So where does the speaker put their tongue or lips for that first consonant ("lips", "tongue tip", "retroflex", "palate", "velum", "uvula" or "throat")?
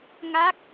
velum